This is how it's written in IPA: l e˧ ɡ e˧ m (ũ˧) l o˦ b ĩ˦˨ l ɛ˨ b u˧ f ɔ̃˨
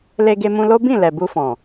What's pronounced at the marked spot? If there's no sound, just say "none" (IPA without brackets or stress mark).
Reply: ũ˧